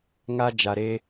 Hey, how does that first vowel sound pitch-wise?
low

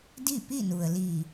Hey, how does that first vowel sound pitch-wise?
falling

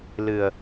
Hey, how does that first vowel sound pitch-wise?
low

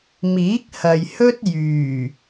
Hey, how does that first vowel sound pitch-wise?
rising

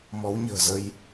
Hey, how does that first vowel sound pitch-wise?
rising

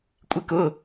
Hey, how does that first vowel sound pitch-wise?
high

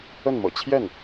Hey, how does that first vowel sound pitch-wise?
falling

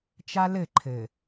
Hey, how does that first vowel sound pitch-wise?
high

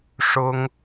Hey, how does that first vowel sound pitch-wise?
high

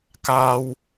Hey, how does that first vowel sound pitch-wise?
low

